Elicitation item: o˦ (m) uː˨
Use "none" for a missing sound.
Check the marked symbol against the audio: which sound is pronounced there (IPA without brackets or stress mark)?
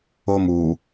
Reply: m